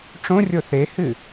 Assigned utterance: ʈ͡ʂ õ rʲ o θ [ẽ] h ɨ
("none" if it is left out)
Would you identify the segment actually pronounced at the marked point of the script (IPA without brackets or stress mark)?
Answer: e